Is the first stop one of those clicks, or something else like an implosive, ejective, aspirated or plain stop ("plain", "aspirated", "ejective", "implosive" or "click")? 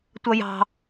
plain